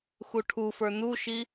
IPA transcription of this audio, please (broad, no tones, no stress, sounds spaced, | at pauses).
x u ʈʰ u f ə˞ n u ʃ i